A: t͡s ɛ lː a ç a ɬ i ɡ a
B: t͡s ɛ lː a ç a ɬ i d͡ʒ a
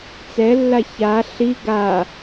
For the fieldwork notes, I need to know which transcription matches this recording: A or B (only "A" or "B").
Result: A